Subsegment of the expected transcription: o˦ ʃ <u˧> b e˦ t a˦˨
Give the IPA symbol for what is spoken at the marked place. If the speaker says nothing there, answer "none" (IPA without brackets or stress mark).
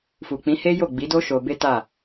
o˧